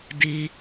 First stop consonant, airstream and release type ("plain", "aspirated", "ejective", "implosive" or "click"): plain